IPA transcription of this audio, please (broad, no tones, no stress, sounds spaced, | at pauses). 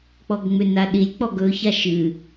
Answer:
k͡p ɔ ɡ ŋ͡m ʏ n a ɗ i lʲ k͡p ɔ ɡ ɵ ç a ʃ ɨ